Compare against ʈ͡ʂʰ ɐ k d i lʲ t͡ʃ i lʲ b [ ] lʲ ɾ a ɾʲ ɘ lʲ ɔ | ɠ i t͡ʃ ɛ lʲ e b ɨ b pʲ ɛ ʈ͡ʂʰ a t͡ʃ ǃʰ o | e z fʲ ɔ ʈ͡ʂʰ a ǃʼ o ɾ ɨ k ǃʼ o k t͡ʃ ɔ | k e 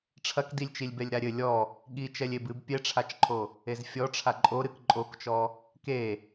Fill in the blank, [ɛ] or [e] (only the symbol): ɛ